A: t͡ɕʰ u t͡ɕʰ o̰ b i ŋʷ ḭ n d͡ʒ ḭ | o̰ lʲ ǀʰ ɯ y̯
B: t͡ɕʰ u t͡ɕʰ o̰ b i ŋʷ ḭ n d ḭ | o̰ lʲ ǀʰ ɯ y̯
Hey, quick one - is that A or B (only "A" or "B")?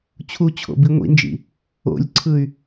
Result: A